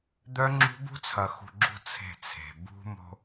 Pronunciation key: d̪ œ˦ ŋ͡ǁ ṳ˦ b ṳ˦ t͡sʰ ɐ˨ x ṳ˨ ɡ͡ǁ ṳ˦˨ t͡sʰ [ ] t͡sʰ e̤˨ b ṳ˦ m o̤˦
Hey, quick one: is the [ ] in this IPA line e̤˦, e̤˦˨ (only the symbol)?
e̤˦˨